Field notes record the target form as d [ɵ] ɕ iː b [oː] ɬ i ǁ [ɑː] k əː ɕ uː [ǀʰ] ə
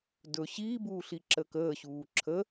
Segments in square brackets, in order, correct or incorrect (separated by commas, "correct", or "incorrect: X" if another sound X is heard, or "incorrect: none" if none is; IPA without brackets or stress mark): correct, incorrect: uː, incorrect: əː, incorrect: ǁʰ